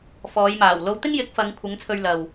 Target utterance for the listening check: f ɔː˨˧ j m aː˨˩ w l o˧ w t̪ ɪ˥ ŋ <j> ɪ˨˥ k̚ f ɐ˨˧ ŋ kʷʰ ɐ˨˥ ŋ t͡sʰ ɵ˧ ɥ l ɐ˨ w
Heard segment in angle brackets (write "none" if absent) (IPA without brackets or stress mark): j